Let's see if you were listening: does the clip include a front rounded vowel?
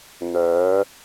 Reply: yes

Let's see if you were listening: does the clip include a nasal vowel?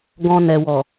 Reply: yes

